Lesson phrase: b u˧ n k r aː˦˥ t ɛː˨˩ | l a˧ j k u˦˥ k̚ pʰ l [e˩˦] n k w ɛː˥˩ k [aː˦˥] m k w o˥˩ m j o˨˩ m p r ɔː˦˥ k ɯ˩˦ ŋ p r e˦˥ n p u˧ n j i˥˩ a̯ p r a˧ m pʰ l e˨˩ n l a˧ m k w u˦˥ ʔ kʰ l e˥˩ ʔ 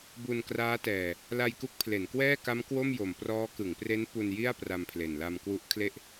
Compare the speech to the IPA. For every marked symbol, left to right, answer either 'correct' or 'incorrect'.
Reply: correct, incorrect

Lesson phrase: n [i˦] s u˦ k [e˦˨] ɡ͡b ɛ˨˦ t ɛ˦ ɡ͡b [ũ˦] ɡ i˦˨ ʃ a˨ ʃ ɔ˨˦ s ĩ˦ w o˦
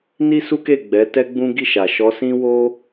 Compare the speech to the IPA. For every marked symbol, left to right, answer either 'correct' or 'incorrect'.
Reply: correct, correct, correct

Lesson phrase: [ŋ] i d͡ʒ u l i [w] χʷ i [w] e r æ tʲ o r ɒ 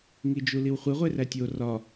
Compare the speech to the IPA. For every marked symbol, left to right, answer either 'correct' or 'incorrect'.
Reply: correct, correct, incorrect

